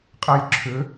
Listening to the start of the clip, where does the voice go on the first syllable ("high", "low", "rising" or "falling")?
high